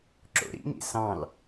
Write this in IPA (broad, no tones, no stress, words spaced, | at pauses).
ǁo̰ɾḭŋḭ sɑ̃l